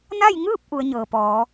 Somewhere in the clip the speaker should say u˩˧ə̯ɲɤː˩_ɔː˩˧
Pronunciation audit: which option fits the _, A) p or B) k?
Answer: A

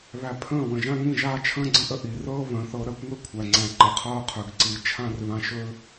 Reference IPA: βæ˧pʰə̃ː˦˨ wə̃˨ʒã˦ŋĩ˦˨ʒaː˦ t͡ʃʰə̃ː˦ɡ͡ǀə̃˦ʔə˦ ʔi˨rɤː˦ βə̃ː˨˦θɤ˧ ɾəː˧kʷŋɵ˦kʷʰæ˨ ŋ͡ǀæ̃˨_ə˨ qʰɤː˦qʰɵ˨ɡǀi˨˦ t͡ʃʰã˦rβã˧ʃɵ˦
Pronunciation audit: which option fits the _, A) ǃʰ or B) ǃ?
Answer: B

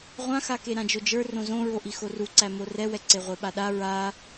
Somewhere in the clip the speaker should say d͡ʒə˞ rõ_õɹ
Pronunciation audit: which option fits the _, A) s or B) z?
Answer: B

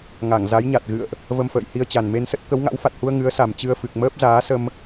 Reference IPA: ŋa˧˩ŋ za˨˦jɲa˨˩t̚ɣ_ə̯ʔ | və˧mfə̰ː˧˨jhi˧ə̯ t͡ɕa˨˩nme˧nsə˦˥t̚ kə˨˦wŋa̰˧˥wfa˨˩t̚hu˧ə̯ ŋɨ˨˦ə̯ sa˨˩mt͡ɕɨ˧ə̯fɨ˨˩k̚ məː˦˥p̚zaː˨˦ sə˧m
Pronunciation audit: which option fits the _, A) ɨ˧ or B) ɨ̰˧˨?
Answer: B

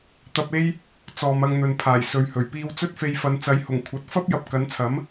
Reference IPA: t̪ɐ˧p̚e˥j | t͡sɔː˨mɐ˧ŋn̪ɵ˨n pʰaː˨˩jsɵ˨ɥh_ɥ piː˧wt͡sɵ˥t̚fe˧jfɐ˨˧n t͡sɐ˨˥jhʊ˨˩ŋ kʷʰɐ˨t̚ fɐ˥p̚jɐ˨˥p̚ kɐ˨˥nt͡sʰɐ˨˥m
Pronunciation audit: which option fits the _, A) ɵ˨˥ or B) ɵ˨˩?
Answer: B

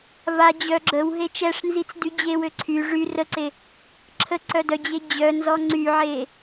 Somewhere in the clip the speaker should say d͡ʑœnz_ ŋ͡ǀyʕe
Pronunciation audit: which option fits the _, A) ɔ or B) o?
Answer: A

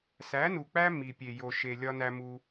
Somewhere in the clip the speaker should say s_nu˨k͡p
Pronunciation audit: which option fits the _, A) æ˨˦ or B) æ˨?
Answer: A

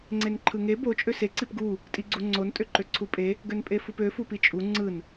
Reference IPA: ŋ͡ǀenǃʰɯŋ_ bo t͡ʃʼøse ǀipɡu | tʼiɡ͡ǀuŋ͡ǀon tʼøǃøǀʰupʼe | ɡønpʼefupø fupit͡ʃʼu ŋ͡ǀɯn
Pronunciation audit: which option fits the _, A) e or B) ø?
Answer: A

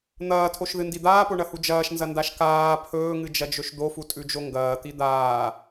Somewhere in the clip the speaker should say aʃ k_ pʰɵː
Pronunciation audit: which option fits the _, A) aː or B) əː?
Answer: A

